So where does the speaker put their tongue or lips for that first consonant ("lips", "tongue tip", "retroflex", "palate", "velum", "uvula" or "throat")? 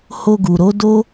throat